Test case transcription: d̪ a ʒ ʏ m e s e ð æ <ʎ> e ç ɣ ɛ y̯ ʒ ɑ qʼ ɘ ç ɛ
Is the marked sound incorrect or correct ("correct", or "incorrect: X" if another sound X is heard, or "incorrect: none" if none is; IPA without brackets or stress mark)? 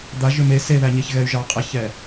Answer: incorrect: ɲ